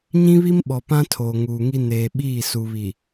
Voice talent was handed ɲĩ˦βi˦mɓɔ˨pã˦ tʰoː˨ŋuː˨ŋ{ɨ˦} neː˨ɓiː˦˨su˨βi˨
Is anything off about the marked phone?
yes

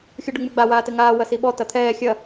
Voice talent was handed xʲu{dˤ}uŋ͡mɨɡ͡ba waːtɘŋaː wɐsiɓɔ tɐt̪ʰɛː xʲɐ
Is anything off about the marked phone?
yes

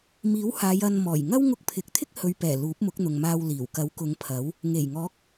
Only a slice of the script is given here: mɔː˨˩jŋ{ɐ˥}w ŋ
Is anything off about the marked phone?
no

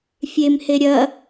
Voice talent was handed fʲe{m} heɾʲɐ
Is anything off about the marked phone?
no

